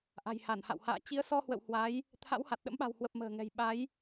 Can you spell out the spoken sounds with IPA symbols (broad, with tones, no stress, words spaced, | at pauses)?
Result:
ʔa̤˨˩jha˧˩nha̰˧˨wha̰ː˧˨ t͡ɕi˨˦ə̯sɔ˧ hwə̰˧˨w hwa˨˦j | t̪ʰa̰˧˥wha˨˩t̚ɗə̰˧˥mɓa̤˨˩w hwə˨˩p̚ mə̤ː˨˩ŋɛ̤˨˩j ɓa˨˦j